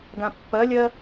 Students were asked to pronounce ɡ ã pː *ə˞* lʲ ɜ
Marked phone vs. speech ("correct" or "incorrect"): incorrect